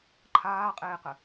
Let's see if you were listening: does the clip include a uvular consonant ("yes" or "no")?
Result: yes